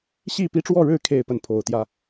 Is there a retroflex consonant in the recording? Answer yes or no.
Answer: yes